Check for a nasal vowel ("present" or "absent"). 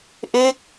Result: absent